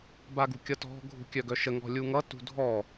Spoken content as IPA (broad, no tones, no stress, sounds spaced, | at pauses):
b a ɡ ṳ kʲ ʌ t ɔ̤ ɡʱ ṳ kʲ œ ɡ œ ʃ ə ŋ ɔ̤ lʲ u ŋ ʌ t ṳ dʱ ɔ